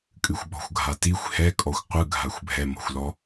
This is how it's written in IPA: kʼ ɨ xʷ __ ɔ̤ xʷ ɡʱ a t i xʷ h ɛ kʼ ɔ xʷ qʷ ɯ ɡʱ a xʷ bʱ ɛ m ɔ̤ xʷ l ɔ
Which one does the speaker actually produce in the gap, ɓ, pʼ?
ɓ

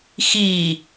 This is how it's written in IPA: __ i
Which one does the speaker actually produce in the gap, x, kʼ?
x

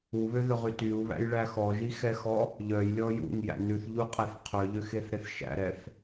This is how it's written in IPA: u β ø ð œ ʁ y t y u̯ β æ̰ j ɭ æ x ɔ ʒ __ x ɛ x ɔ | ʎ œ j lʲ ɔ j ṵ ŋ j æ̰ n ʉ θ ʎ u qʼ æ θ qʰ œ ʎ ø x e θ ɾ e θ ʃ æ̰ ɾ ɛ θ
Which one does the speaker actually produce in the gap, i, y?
i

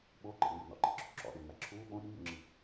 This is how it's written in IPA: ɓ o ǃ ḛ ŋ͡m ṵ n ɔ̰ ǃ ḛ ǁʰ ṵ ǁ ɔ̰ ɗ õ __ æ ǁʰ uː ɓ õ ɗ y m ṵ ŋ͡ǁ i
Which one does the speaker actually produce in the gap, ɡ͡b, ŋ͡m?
ŋ͡m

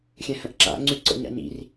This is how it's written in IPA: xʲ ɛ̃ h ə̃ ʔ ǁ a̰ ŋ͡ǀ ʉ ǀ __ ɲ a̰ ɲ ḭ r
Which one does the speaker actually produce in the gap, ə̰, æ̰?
ə̰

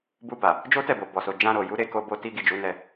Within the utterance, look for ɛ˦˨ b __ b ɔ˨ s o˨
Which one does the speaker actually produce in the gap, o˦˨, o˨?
o˨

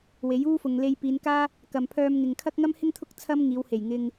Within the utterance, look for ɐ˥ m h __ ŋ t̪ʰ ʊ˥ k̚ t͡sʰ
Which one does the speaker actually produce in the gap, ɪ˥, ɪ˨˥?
ɪ˥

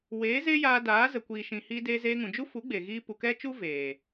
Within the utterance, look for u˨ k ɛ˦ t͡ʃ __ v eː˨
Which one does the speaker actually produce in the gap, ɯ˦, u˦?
u˦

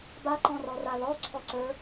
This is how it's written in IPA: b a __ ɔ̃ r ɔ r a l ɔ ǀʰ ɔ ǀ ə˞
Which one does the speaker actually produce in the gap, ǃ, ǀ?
ǃ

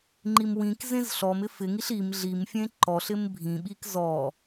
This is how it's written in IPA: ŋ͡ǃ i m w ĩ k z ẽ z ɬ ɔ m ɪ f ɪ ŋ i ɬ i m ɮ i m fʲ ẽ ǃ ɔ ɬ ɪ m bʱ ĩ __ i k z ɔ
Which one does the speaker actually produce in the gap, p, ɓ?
ɓ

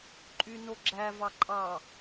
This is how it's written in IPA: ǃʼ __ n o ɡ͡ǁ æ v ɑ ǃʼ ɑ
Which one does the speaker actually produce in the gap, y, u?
y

